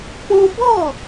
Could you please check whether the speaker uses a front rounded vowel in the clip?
no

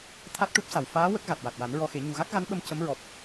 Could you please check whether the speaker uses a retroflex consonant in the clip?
yes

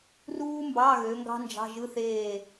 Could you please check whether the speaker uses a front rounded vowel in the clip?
yes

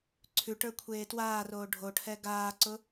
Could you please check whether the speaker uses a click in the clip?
yes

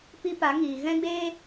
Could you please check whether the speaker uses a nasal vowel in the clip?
yes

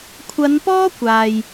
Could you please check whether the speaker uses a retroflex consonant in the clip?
no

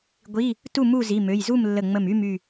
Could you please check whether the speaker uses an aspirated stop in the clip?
no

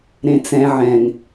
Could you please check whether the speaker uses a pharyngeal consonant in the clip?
yes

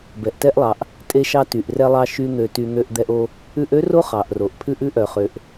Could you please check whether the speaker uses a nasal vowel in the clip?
no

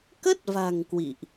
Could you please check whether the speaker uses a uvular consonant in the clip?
no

